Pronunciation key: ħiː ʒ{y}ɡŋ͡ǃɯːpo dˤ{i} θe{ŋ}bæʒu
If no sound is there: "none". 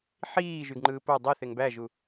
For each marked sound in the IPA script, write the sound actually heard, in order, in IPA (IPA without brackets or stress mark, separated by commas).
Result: y, i, ŋ